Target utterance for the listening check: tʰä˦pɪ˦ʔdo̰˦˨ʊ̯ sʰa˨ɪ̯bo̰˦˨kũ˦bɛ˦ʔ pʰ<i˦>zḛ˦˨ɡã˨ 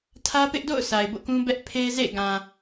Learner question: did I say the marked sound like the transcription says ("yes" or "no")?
no